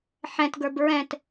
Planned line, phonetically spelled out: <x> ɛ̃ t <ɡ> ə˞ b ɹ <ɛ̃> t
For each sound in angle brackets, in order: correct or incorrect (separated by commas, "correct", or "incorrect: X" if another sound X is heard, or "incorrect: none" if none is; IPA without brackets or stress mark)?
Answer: incorrect: ħ, correct, correct